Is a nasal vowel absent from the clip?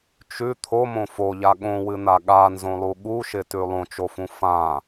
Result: no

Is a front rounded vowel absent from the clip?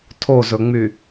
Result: no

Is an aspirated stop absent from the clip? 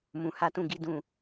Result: yes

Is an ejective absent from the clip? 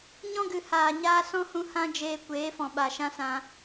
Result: yes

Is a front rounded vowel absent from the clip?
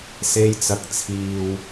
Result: yes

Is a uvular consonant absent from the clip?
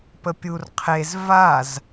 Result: no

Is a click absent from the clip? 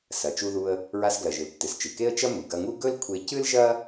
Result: yes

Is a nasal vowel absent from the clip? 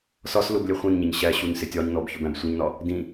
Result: no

